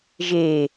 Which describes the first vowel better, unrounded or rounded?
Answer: unrounded